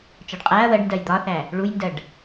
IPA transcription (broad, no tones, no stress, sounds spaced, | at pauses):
t͡ʃ ɒ ɖ qʼ æ ɐ̯ w ɜ ɖ n d ɜ j d̪ ɒ θ æ | ɭ u j n d ɜ ɖ